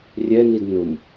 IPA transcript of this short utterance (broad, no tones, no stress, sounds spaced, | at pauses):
rʲ ɛ n i d n ʊ m